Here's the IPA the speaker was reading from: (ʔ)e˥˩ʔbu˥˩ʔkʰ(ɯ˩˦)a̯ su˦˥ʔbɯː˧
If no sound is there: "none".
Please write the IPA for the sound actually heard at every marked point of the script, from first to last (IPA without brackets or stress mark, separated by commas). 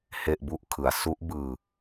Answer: h, ɯ˩˦